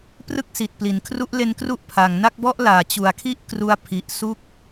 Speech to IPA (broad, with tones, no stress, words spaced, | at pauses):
prɯ˥˩k̚si˨˩t̚pli˩˦n kʰru˦˥ʔle˦˥nkru˦˥ʔ pʰa˩˦ŋna˥˩k̚bɔ˥˩ʔ laː˨˩t͡ɕu˩˦a̯kʰi˥˩ʔ kru˧a̯pʰi˨˩ʔsu˦˥k̚